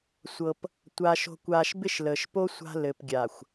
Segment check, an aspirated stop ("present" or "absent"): absent